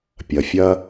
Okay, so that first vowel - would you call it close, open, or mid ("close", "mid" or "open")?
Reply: open